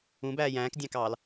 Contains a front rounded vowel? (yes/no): no